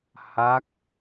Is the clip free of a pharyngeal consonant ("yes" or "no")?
yes